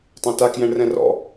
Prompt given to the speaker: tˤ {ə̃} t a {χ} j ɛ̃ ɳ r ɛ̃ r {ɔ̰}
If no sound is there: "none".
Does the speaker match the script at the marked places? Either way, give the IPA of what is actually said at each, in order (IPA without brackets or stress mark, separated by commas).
ã, k, ɔ̰